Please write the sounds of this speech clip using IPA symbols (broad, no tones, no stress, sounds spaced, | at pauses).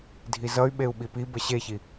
dʱ i z ʌ y̯ ɓ e u̯ ɓ i p i b ə ɕ e ç i